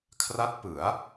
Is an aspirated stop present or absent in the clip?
present